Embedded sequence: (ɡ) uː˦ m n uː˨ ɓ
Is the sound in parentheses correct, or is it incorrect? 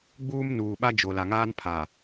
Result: incorrect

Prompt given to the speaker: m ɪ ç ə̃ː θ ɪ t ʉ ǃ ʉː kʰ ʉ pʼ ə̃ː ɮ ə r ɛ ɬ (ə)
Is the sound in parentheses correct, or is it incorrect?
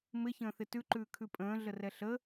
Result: correct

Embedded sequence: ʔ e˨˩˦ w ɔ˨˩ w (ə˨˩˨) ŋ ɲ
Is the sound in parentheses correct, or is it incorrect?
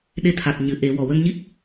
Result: incorrect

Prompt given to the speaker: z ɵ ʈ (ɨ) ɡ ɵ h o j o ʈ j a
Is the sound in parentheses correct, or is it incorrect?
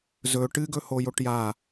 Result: correct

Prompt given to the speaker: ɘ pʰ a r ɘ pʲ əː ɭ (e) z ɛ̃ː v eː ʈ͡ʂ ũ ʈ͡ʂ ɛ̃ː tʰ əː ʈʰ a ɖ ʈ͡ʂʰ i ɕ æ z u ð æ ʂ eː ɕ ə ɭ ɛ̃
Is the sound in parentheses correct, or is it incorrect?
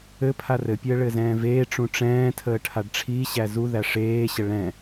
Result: incorrect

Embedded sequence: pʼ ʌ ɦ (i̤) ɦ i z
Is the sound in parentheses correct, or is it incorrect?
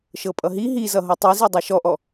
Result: incorrect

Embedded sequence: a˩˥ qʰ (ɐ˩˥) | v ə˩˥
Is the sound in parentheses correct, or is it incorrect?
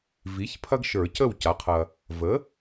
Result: incorrect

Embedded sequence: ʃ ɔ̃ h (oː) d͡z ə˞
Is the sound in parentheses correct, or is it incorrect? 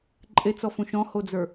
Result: incorrect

